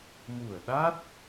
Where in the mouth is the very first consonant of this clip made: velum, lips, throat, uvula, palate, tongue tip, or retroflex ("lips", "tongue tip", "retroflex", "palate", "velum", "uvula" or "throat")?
lips